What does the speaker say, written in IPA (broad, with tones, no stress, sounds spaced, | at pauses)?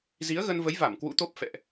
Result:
z i˨˦ ə̯ ɣ ə˧ n v ə˨˦ j v a˧˩ m k w ṵ˧˥ t̪ o˦˥ p̚ f ɛ̰˧˨ ʔ